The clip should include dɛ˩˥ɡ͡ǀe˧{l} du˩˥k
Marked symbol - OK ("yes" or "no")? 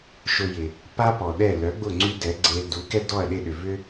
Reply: yes